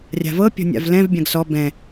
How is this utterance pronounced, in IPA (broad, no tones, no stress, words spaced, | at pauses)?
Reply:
rʲa̤vɤ pʲɔ̤nʲa̰vlɛ̃v bʲãɡsɔ bɛ̃